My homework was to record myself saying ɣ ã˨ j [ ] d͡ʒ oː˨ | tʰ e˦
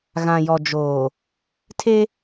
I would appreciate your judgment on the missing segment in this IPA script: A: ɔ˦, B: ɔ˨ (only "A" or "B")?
B